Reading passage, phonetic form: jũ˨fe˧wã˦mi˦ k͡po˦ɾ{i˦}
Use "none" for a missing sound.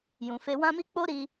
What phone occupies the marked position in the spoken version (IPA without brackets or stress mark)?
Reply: i˧